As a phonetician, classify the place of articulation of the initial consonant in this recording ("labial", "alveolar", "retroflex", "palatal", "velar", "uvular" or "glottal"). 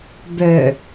labial